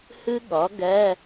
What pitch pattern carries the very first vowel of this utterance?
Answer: high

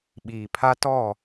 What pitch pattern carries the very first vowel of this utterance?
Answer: low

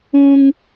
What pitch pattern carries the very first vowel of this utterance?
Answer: high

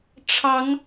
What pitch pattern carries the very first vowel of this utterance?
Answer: rising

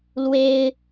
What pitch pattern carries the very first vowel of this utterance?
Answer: high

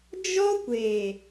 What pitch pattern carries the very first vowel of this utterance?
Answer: high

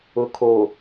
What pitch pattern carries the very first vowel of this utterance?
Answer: low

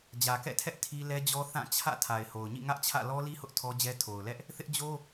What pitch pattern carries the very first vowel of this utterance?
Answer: low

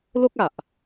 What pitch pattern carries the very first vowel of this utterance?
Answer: high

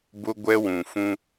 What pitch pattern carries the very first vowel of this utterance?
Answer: high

